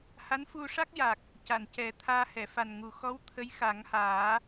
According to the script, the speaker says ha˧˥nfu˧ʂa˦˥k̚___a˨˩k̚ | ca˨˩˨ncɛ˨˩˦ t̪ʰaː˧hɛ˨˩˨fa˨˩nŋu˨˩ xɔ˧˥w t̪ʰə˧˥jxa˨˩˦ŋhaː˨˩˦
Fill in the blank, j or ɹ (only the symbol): j